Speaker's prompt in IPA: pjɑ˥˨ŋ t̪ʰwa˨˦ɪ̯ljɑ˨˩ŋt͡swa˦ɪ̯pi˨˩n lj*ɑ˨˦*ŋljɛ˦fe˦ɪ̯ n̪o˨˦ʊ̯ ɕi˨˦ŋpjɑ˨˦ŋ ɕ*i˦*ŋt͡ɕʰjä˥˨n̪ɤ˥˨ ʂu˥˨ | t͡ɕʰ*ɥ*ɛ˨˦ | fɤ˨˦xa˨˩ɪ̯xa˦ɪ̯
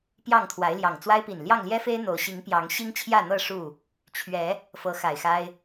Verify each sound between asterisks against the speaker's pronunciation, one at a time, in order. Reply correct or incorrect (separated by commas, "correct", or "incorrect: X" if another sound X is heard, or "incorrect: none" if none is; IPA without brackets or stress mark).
incorrect: ɑ˥˨, correct, correct